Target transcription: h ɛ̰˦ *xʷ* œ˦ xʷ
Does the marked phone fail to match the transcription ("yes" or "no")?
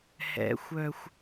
no